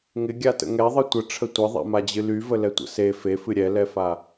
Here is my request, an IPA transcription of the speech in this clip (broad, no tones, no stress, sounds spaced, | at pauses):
ŋ ɪ ɡʲ a t ə̰ ŋ ɛ ðˤ ɨ tʷ ə ʈ͡ʂʰ ə tʷ ɪ ðˤ ɛ̰ m a d͡ʑ ɨ l y v ə l ɛ tʷ ə̰ s e f e f ɨ ɾʲ ɛ l ɛ f a